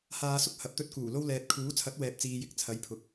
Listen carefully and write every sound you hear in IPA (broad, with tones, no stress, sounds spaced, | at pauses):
h aː˨˧ s ʊ˧ k̚ h ɐ˨ p̚ t̪ ɵ˧ t̚ k uː˨˩ l o˧ w l ɛː˨ t̚ kʰ uː˨˥ t͡sʰ ɐ˨˥ t̚ w ɛː˨ p̚ t͡s iː˨ j ɪ˨˥ k̚ t͡sʰ ɐ˨˥ j pʰ ʊ˨ k̚